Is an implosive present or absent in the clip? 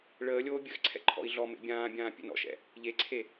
absent